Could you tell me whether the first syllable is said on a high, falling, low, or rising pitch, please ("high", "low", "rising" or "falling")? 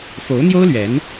rising